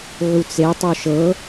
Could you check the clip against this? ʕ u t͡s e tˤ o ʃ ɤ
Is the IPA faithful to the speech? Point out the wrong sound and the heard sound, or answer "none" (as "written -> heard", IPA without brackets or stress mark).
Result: none